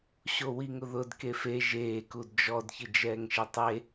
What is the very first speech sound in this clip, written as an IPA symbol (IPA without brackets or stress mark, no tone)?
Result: ɕ